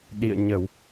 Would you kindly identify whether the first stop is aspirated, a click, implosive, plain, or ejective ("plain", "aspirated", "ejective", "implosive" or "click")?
implosive